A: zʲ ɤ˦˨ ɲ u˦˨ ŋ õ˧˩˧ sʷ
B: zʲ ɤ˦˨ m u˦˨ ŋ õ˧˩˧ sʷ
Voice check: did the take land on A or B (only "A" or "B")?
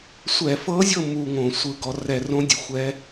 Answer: B